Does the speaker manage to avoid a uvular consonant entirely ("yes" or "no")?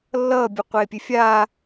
no